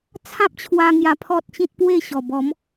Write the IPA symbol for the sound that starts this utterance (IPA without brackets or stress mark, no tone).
t͡sʰ